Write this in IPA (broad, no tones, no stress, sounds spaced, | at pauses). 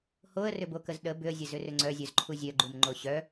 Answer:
h o ə̯ r ʏ b o k ə z ɗ ə b ʏ ə̯ zʲ ə z ʏ r ʏ ŋ͡ǀ œ zʲ œ z ǃʰ u zʲ œ ɡ͡ǃ u m ŋ͡ǃ o ɕ œ